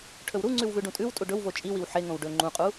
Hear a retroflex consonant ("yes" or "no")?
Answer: yes